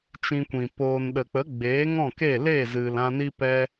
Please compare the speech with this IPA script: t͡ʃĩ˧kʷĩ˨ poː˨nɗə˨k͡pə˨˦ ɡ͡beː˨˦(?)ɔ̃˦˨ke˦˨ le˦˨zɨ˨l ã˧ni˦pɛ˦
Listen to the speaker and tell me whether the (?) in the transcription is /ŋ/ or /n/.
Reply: ŋ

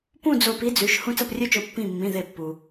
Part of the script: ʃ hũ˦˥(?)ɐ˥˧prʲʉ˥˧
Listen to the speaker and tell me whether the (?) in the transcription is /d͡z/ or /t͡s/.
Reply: t͡s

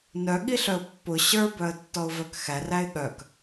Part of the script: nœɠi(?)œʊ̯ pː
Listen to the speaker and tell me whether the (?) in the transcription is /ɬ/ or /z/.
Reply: ɬ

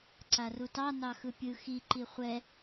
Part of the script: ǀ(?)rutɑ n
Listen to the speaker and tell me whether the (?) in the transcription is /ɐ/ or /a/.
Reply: a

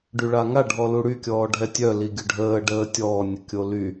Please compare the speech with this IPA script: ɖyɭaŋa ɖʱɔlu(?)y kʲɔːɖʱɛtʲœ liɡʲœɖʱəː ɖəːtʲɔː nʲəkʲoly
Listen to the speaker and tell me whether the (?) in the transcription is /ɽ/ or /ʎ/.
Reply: ɽ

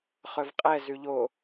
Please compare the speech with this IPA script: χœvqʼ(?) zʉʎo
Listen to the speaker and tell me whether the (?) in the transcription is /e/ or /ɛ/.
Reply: ɛ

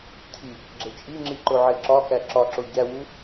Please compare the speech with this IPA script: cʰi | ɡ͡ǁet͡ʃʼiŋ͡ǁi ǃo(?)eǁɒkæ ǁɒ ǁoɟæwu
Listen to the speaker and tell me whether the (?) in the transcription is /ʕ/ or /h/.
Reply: ʕ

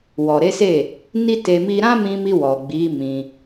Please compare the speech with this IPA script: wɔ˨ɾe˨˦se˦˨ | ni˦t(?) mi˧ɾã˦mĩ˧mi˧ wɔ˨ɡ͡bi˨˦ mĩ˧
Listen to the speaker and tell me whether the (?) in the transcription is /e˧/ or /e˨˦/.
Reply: e˧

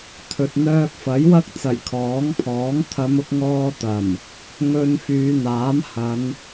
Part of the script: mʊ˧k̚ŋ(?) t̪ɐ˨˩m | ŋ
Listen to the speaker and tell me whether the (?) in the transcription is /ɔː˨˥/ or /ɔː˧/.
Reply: ɔː˧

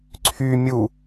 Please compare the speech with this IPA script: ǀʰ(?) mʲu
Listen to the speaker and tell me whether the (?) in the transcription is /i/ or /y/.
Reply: y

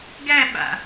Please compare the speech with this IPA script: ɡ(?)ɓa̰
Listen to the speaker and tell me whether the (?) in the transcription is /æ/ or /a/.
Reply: æ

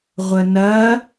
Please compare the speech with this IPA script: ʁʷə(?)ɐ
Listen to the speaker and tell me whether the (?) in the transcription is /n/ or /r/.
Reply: n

